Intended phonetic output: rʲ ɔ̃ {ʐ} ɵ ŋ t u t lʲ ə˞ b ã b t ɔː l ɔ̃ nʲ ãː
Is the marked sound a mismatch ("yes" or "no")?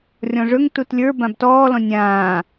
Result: no